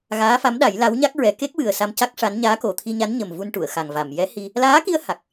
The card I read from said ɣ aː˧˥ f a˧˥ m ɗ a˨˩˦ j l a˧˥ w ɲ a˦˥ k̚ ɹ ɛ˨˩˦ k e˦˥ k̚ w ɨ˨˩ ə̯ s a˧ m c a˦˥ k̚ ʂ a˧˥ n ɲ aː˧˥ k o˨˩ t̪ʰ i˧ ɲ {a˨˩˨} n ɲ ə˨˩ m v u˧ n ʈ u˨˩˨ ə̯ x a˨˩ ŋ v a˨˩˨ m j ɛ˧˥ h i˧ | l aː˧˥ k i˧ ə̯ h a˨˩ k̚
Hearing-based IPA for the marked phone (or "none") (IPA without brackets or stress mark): a˧˥